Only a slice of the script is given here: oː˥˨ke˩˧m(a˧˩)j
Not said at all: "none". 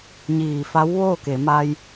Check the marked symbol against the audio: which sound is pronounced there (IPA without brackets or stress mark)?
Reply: a˧